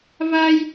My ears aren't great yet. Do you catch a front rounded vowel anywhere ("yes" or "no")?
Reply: no